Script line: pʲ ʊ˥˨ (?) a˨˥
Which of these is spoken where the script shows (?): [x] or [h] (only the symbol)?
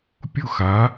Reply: x